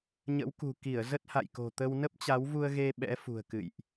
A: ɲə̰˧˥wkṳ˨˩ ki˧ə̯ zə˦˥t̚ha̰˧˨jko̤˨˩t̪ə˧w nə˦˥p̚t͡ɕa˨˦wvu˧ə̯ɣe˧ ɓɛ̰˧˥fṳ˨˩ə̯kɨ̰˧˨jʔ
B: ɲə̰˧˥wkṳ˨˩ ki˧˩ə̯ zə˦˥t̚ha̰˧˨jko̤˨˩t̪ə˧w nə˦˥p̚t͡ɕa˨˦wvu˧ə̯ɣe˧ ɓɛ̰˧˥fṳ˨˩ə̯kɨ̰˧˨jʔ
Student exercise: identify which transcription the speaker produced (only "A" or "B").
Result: B